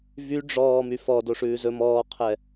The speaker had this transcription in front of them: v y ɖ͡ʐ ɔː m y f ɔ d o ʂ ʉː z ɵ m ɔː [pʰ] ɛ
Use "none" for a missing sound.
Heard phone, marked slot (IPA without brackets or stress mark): qʰ